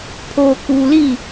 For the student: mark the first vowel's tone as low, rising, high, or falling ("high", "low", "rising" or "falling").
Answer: low